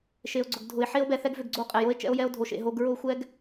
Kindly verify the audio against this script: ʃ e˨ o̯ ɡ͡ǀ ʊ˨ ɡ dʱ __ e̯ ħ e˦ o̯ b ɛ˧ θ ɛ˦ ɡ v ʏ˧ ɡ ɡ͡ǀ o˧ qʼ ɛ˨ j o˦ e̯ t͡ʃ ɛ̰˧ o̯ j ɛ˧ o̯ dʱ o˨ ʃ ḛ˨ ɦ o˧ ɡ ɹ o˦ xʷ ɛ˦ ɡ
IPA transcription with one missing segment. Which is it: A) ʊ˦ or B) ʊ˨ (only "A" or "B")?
B